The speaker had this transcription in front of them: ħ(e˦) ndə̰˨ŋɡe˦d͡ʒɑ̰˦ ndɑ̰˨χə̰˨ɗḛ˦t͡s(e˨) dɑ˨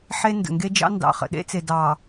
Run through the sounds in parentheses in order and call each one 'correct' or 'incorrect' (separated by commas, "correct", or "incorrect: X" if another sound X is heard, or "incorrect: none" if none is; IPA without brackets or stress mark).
correct, correct